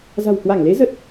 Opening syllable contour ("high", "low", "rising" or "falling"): low